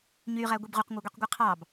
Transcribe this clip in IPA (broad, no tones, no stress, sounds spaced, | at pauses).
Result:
ɲ y ʁ æ ɡʷ i b ʁ u q ŋʷ æ ɡʷ i q ɡʷ ɯ qʰ ɑ b